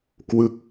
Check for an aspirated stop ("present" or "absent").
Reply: absent